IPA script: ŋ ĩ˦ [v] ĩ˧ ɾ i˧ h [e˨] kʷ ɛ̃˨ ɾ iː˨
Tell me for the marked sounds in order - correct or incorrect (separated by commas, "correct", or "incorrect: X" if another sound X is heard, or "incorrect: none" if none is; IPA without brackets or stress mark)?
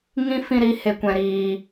incorrect: f, correct